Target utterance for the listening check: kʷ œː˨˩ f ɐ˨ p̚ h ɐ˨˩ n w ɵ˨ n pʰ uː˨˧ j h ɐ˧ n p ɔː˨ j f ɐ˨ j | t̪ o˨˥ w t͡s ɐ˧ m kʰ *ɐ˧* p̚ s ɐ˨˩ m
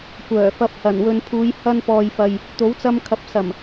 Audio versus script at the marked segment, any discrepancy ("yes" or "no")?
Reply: yes